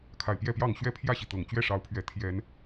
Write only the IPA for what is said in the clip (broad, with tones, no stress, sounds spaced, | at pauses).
kʰ a˨˩ ɪ̯ p j ɛ˥˨ p j ɑ˥˨ ŋ ɕ ɥ ɛ˥˨ pʰ j ä˥˨ ɕ i˩ t̪ ɤ˨˩ ŋ t͡ɕ ɥ ɛ˥˨ ʂ ɑ˨˦ ʊ̯ pʰ ɥ ɛ˨˦ t̪ʰ j ɛ˨˦ n